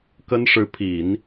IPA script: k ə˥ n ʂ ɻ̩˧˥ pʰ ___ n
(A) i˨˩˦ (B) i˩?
A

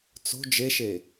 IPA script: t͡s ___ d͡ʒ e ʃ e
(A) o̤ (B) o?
A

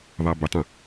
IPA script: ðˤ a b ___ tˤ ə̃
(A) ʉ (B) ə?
B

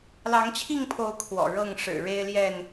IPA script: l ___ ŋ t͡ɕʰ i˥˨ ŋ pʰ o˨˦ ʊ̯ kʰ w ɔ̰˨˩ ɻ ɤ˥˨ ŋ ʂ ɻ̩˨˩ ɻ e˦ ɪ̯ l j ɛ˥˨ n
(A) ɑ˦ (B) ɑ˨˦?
B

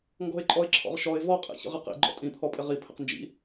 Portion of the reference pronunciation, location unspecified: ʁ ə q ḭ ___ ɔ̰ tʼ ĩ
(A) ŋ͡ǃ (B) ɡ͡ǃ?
B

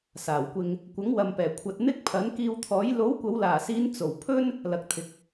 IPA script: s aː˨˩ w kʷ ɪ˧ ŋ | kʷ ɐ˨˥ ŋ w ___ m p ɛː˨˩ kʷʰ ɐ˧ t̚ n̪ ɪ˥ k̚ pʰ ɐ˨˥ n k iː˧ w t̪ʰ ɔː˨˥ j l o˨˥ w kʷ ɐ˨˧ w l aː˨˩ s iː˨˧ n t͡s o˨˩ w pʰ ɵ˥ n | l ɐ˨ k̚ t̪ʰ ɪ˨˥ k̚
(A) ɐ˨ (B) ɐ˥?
A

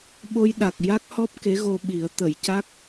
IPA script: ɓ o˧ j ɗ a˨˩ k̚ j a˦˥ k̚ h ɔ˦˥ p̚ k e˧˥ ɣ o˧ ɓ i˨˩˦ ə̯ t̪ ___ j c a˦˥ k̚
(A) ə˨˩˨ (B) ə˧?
A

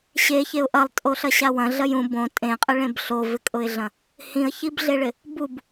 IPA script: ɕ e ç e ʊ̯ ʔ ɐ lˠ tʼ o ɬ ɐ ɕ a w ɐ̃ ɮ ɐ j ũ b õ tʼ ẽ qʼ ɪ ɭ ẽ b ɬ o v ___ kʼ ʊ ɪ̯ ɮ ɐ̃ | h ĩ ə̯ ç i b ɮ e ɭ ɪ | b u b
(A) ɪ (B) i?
A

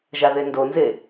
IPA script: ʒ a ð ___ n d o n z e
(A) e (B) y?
A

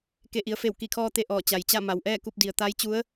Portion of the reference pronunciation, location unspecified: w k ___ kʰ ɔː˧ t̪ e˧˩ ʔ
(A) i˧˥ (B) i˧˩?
B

